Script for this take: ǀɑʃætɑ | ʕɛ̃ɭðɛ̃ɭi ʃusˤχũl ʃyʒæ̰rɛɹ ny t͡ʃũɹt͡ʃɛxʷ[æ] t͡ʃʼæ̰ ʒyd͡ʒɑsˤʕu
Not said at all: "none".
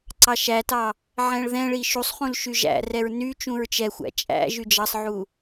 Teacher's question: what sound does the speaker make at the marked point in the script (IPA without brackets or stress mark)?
æ̰